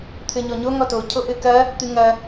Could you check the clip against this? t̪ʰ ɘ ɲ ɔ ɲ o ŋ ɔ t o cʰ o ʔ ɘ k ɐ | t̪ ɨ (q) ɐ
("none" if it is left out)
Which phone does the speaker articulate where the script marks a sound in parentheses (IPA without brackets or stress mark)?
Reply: ŋ